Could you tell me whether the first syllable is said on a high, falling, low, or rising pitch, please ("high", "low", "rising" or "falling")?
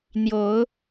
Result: low